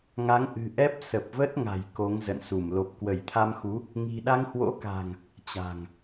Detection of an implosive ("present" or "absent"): present